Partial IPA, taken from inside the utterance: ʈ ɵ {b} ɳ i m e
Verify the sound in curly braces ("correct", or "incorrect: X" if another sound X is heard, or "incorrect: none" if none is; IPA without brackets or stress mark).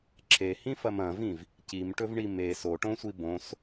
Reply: incorrect: v